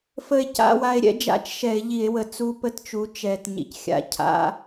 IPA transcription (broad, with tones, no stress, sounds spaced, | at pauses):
f ə˧ e̯ c a̰˧˥˧ w a˧ e̯ ɾʲ ɛ̰˩˥ d͡ʒ a̰˧˩˧ t͡ʃ ʃ ɛ˧˩˧ e̯ ʎ i˧˩˧ e̯ w ə˨˩ t͡s u˦˥ p ə˦˥ t t͡ʃ u˩˥ t͡ʃ ɛ˨˩ t ɲ ḭ˩˥ c xʲ a̰˧˥˧ cʰ a̰˧˥˧